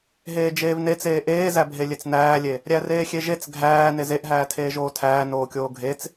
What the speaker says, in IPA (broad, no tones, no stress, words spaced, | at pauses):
ɦeːd͡ʒeːvnet͡seː ʔeːzæbʱe lʲet͡snæːlʲe | ɾʲæreːxʲeʒet͡s ɡʱæː nezeʔɦæː tʰeːʒoːtʰæː noːkʲoːɡʱet͡s